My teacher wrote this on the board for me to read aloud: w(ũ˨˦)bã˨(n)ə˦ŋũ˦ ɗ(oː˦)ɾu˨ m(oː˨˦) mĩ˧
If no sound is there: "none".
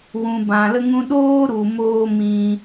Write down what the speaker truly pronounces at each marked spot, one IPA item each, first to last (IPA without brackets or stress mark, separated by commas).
ũ˨, l, oː˦, oː˦